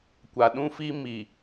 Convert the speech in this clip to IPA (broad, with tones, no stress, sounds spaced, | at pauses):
kʷ a˨ ɗ ũ˦ f i˦ m i˨